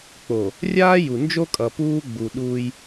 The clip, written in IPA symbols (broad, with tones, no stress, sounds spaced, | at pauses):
k͡p o˨ | rʲ aː˦ j u˨ n d͡ʒ o˦ kʼ ʌ˨ p uː˦ ɡ͡b u˨ ɗ uː˦ j